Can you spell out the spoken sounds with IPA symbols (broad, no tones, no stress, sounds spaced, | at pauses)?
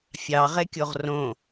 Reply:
fʲ ɑ ʁ e kʲ o ʁ r õ